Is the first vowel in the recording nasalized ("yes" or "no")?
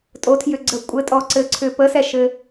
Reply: no